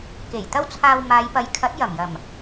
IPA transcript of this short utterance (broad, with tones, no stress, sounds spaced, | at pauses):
k e˨˩ j t̪ ɐ˥ w t͡sʰ aː˧ w m aː˨˧ j p ɐ˨ j kʰ ɐ˨˥ t̚ j ɐ˨˩ m j ɐ˨˩ m